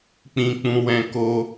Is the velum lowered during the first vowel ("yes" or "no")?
yes